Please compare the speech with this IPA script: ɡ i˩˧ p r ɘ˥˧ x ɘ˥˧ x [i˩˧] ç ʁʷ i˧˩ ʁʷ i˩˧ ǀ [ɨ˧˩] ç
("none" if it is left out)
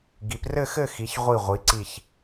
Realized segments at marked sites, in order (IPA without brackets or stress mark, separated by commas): i˩˧, i˧˩